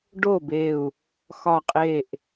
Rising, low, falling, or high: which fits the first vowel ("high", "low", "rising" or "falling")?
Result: falling